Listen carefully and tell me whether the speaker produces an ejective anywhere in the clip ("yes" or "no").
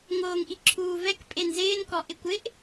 yes